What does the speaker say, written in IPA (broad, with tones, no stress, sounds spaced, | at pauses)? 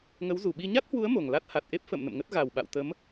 ŋ ə˨˦ w z u˧˩ ɓ i˧ ɲ a˦˥ t̚ h w u˨˦ ə̯ m o˨˩ ŋ l a˦˥ t̚ h a˨˩ t̚ ʔ e˦˥ p̚ f ə̰ː˧˨ m n ə̰˧˨ m ŋ ə˦˥ t̚ ɣ a˨˩ w ɓ a̰˧˨ w t̪ ə˨˦ m